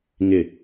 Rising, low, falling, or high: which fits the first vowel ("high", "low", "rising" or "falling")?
low